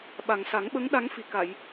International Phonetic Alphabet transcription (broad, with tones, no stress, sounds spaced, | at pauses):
ɓ a˨˩ ŋ s a˨˩˦ ŋ ɓ ə˧˥ ŋ ɗ a˧˥ ŋ f i˨˩ k a˨˩˨ j